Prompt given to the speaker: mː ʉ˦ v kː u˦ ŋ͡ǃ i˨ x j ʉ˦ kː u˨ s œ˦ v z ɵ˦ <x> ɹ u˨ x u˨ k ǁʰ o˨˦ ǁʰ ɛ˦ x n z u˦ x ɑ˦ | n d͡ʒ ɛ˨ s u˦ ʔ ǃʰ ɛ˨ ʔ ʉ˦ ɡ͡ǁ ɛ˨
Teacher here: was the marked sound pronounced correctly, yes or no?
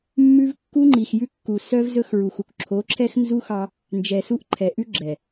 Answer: yes